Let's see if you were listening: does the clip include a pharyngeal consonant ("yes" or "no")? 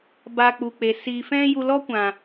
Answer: no